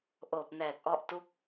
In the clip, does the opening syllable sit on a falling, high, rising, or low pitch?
low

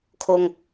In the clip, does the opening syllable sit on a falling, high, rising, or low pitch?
high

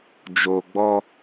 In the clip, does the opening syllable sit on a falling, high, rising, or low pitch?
low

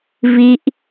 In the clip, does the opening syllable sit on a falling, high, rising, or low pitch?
high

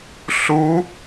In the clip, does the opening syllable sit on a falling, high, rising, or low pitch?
rising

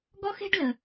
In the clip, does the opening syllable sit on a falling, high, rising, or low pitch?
high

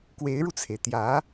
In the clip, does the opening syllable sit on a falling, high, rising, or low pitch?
rising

